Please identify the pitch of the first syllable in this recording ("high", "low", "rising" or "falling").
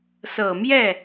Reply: low